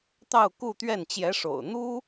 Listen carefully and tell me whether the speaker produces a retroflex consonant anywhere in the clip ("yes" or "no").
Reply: yes